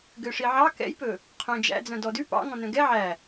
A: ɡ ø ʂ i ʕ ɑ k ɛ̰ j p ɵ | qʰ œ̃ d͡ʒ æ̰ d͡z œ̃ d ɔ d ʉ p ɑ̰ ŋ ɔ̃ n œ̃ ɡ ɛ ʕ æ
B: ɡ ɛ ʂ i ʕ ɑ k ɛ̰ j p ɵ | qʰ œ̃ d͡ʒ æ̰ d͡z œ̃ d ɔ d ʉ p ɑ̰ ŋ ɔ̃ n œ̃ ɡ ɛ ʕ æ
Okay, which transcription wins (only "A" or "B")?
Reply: A